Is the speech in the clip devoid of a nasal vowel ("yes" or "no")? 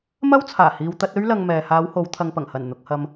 yes